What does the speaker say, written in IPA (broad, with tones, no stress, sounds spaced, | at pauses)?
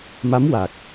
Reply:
m a˧˥ m w a˨˩ k̚